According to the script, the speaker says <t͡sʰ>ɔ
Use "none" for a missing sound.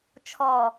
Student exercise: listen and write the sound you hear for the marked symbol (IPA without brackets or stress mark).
t͡ʃʰ